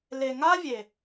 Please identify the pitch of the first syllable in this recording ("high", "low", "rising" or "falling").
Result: low